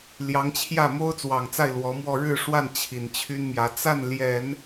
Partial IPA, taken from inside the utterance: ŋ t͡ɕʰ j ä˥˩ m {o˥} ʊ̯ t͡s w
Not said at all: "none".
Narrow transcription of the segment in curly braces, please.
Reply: o˥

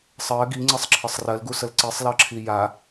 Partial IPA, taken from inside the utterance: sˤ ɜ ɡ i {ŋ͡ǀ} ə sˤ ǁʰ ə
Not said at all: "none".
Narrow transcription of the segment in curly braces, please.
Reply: ŋ͡ǀ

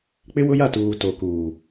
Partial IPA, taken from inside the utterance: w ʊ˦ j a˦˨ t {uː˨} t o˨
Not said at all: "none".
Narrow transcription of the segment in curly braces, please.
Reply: uː˨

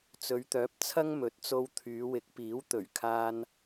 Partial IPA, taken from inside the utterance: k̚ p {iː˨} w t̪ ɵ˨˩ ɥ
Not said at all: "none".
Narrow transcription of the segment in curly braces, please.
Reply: iː˨˥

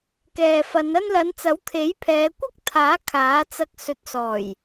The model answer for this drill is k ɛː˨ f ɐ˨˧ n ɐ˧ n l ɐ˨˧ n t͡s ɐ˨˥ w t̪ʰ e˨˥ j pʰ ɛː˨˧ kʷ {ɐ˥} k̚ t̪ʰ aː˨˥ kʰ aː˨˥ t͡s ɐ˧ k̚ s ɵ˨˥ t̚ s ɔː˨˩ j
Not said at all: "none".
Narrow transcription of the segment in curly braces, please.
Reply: ɐ˥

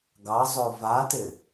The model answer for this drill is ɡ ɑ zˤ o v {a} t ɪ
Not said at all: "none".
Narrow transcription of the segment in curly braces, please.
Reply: a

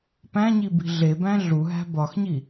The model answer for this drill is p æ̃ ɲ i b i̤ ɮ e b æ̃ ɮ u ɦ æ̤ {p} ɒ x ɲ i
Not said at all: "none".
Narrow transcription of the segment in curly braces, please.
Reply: b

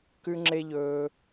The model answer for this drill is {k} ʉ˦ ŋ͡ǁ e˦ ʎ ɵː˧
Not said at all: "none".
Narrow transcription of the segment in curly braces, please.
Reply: k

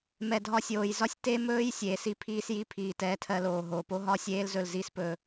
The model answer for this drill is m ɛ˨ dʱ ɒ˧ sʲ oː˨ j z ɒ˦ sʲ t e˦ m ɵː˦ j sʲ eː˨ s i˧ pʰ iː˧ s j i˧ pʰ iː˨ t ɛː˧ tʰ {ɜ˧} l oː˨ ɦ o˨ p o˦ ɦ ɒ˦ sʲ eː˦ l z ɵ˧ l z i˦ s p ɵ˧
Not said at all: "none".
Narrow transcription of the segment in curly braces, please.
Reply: ɜ˧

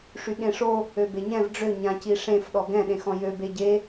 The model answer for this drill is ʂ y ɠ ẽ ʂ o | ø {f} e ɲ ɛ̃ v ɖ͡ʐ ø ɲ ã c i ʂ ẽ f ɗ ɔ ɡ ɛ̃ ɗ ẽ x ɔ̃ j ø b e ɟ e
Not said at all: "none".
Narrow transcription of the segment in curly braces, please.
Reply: b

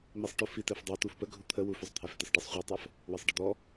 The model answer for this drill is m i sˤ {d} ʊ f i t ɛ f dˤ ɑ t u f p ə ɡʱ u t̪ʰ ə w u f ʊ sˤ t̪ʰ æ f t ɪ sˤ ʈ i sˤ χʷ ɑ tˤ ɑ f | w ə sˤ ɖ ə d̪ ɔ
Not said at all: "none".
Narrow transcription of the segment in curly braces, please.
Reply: ʈ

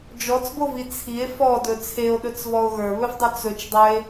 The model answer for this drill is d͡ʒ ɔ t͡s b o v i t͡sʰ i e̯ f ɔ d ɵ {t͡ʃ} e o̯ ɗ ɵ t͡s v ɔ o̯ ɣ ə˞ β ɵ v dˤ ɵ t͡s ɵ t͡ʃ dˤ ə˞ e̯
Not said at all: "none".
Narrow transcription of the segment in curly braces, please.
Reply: t͡sʰ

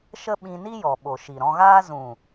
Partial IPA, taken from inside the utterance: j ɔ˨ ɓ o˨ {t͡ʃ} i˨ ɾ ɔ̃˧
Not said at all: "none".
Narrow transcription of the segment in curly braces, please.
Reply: ʃ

